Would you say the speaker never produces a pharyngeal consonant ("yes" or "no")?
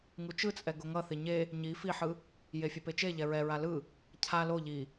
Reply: no